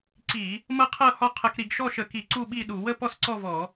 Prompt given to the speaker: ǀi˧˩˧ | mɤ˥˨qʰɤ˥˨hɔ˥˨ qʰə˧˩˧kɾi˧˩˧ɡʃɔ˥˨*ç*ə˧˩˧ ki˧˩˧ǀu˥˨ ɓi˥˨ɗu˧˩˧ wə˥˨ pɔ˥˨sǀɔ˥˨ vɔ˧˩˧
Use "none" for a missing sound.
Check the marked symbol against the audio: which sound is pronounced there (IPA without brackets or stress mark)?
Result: ʃ